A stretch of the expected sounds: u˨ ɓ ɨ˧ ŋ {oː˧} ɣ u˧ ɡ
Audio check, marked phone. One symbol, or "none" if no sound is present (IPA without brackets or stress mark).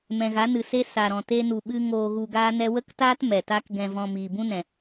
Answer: oː˧